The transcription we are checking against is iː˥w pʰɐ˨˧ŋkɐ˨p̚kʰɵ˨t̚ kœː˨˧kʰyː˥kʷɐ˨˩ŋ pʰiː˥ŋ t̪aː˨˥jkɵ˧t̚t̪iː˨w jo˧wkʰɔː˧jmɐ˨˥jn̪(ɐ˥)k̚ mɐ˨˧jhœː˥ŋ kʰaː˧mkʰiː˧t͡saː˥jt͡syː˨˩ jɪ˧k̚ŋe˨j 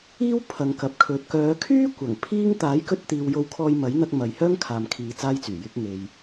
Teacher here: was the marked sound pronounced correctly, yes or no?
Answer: no